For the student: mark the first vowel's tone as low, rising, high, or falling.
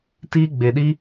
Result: high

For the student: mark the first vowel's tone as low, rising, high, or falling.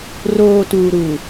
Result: low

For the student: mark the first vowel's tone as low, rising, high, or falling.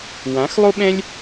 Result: rising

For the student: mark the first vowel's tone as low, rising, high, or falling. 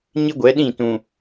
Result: high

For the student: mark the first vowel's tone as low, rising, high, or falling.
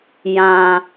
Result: high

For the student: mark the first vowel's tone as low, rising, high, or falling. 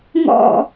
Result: low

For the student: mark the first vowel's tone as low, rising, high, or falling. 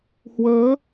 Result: rising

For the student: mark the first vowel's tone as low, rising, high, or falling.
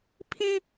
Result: high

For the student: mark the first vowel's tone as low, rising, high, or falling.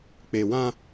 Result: low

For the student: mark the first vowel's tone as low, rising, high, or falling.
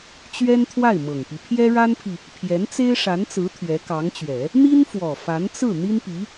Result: high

